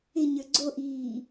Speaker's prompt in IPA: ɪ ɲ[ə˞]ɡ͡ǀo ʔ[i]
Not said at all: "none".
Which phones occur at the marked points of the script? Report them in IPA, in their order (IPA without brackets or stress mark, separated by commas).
ə˞, iː